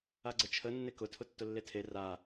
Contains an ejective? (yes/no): no